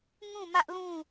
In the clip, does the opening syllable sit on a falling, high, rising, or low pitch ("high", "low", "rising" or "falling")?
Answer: falling